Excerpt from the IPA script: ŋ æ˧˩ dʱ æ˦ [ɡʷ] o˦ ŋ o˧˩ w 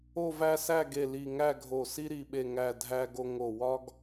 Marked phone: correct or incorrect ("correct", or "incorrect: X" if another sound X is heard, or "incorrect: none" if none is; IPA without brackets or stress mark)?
incorrect: ɡ